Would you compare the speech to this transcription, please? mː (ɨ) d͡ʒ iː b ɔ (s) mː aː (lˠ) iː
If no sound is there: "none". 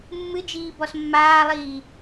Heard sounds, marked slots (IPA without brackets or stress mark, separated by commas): ɨ, s, lˠ